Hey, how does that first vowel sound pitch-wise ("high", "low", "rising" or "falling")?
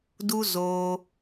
high